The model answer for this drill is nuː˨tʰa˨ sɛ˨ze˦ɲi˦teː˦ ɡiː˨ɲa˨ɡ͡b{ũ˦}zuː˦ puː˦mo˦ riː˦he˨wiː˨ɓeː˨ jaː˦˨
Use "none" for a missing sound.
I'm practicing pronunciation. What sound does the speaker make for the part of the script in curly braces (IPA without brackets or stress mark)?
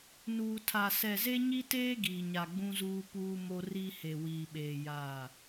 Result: ũ˦